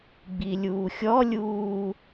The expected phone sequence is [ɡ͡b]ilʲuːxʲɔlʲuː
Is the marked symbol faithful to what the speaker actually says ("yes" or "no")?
yes